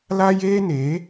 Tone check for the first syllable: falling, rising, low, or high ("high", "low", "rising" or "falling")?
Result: high